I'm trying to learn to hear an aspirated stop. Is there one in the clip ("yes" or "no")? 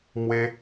no